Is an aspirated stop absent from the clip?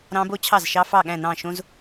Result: no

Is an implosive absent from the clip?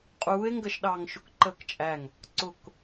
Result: no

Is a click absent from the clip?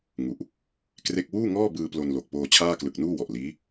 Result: yes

